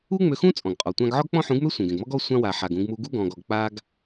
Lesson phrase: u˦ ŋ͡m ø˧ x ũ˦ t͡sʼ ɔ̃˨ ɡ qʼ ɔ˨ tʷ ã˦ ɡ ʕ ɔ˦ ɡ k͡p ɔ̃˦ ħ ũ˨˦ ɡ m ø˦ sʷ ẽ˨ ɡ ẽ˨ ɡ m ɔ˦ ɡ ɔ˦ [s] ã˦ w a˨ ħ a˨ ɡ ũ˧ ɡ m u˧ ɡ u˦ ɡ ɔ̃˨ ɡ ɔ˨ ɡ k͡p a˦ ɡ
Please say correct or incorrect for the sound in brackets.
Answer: incorrect: sʷ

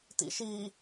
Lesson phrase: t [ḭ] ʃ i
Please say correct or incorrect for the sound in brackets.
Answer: correct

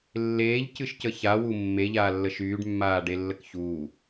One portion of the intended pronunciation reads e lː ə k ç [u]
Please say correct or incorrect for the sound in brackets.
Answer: incorrect: uː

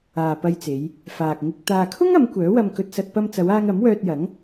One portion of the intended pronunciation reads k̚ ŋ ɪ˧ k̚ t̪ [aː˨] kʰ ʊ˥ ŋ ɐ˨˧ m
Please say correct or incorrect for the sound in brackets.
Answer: correct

